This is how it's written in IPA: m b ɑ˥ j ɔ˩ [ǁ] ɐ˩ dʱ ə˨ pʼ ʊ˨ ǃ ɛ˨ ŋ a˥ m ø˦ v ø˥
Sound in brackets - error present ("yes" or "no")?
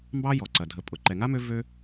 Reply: yes